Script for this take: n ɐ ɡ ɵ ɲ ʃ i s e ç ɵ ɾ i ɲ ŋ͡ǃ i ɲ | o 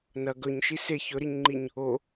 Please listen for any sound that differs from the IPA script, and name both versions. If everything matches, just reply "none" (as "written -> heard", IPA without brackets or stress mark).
none